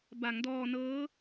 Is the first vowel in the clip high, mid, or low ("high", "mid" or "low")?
low